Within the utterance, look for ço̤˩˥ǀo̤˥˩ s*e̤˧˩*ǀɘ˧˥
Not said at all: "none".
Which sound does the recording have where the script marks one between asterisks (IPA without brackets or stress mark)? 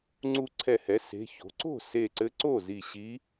e˧˩